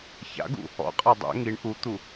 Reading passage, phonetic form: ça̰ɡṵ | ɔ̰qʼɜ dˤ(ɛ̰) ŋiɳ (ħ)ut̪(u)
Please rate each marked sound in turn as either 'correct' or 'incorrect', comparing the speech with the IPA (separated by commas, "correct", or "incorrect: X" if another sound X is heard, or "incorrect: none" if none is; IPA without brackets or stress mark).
correct, incorrect: ʔ, correct